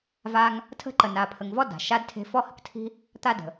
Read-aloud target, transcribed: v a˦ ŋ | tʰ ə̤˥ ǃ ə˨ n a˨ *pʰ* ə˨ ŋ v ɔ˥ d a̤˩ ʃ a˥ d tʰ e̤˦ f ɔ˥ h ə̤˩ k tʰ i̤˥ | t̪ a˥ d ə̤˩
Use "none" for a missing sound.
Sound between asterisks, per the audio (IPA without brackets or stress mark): pʰ